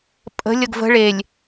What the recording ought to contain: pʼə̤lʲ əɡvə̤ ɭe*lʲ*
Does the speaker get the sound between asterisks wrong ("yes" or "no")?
no